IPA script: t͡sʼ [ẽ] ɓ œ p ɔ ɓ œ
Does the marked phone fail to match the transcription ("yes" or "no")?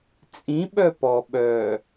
yes